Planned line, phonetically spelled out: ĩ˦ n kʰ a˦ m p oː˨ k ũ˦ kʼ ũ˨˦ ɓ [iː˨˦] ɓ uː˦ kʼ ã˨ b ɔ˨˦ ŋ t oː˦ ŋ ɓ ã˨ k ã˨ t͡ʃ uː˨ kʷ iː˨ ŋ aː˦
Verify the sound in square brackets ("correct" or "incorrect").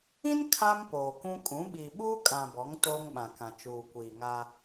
incorrect